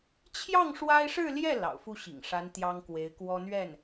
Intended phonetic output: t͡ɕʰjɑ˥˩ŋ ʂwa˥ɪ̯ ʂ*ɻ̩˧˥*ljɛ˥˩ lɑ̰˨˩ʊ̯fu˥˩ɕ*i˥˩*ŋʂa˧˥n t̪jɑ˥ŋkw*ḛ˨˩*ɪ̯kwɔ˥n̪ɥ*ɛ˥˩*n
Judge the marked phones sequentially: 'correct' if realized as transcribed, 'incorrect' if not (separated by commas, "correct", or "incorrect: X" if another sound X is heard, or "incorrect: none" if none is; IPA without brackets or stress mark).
incorrect: ɻ̩˥˧, incorrect: ḭ˨˩, incorrect: e˧˥, correct